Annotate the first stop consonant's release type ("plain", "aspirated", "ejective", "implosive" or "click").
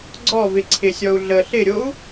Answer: click